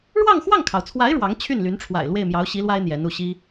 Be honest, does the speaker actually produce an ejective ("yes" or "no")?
no